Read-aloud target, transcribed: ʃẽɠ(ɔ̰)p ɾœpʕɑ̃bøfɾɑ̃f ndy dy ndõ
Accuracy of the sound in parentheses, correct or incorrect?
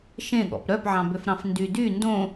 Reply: correct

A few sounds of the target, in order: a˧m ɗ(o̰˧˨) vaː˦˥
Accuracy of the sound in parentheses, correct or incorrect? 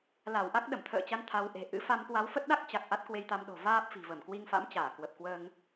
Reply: incorrect: o̤˨˩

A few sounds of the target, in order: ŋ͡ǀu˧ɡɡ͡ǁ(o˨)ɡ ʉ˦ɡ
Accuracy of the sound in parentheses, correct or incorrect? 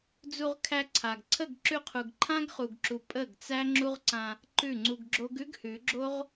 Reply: incorrect: o˦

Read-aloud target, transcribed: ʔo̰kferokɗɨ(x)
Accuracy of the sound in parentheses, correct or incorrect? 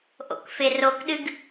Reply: incorrect: ɡ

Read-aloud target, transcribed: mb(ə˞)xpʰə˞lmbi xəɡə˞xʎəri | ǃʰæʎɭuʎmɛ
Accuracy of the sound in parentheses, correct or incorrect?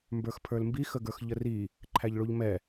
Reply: correct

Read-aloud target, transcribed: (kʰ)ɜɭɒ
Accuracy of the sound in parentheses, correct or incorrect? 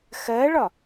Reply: incorrect: x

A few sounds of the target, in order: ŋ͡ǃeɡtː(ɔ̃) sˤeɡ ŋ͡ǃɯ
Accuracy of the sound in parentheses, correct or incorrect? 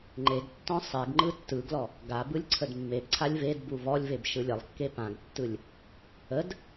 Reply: correct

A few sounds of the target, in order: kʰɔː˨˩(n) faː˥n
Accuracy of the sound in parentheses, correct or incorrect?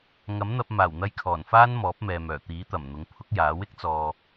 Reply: correct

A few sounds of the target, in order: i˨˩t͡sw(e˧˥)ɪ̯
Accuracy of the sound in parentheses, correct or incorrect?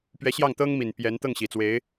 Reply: correct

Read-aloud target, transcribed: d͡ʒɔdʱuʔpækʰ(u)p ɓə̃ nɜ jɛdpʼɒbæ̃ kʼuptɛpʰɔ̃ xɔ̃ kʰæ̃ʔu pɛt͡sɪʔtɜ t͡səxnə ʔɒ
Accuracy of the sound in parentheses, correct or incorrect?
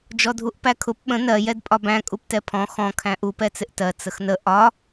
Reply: incorrect: ʊ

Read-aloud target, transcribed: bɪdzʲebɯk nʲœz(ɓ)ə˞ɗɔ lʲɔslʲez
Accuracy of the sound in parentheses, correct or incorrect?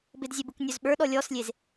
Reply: correct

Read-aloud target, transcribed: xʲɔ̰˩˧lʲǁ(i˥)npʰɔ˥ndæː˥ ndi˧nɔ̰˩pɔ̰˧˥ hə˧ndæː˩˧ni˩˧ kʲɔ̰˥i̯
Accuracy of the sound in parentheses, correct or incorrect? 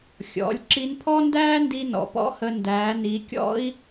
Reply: incorrect: i˧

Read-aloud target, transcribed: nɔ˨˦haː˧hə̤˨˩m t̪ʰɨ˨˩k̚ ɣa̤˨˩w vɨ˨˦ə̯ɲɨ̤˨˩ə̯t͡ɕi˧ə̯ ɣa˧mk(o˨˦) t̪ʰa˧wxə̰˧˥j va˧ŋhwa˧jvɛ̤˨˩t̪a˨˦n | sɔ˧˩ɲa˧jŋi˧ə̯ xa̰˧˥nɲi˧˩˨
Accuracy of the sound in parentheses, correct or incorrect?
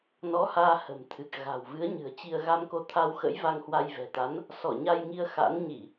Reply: correct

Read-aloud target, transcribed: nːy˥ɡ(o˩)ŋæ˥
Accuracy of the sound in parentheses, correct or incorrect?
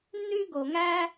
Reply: correct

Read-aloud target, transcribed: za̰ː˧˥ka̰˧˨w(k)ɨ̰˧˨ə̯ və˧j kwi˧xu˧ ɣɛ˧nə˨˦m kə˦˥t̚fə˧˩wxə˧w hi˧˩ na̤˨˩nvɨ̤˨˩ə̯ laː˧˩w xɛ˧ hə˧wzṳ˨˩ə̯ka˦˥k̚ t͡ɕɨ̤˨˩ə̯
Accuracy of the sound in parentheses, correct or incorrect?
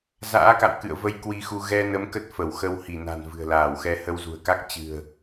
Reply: correct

